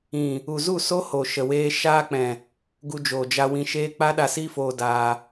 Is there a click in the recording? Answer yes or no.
no